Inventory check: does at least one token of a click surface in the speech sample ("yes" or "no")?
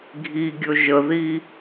no